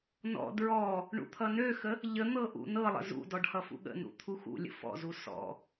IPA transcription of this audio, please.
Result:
n ɔ̰ d ɹ ɔ | ɳ ṵ t̪ʰ ʌ n ø x ə | ʎ ə n̪ ɤ ʔ ṵ n ɤ lˠ ə̰ z ṵ d ɔ ɖ h ʌ f ṵ ɠ ə̰ n ṵ t̪ʰ u x ṵ lʲ ə̰ f ɔ̰ z u s ɔ̰

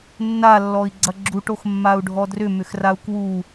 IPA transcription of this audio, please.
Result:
nː a lː ɔ i̯ ɡ͡ǀ ɐ ɡ͡ǁ u ʈ o x mː a u̯ ɖʱ ɔ d r ʏ m ʏ x r a u̯ k w u

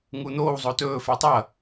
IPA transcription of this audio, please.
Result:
ŋ u n̪ oː w zˤ o t ɵː f e tˤ ɐ

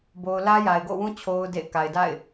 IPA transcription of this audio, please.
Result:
b o˨ ʊ̯ l ä˦ j a˨ ɪ̯ ɡ o̰˦˨ w ũ˦ t͡ɕʰ o˦ ʊ̯ d ḛ˦˨ ɪ̯ k a˨ ɪ̯ d a̰˦˨ ɪ̯

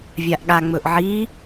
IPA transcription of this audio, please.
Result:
vʲ a ʔ ɠ a ŋ͡m ɵ ʔ ʕ i

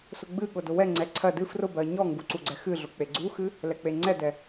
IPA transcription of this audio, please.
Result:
s ʊ ɡ͡b ɨ ɠ ʊ d ʊ w ɛ ŋ͡ǀ ɛ ǀʰ ɜ d ɨ f r ʊ b ɜ ɲ ɔ ŋ ɡ u ǀ u ɡ͡ǀ ɛ x ɨ ɮ ʊ k͡p e ɡ͡ǀ u x ɨ | l ɛ k͡p e ŋ͡ǀ ɛ d ɛ

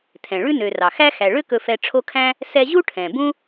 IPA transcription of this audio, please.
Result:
tʰ ɛ̃˩ ɭ ʉ˥ n ø˨ r ɑ˩ x æ˥ x æ˨ ɭ ø˥ k ɵ˦ f ɛ˦ ʈ͡ʂʰ o˦ kʰ æ̃˥ | s ɛ˦ ʑ u˥ ʈʰ ɛ̃˩ b ũ˥

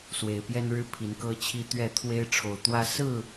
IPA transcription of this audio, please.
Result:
s w e˨˩ ɪ̯ p j ɛ˦ n ɻ ɻ̩˦ pʰ i˨˦ n k ɤ˦ t͡ɕʰ i˦ t̪ ɥ ɛ˥˨ t̪ʰ w e˦ ɪ̯ ʈ͡ʂʰ o˨˩ ʊ̯ t̪ w ä˦ s ɹ̩˥˨

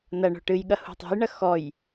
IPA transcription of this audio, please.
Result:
n ɐ ɳ o̤ ʈ ɨ j ɠ ɐ h ṳ tˤ o̤ j ɳ ɐ x ɔ j

